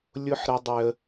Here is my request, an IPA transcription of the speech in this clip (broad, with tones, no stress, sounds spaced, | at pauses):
lʲ ʊ˦ ħ ɾ ə˦ dˤ ʏ˦ ə̯